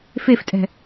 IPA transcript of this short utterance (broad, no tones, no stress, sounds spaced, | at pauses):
f e f tʼ ɛ̤